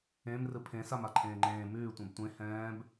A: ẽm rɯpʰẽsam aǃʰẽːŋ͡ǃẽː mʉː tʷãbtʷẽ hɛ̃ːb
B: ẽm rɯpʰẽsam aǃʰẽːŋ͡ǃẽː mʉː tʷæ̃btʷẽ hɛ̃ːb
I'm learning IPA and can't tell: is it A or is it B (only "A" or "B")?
A